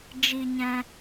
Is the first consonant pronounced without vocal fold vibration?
no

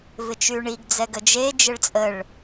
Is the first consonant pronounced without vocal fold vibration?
no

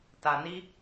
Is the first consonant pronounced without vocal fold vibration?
yes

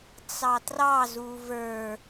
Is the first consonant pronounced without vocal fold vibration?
yes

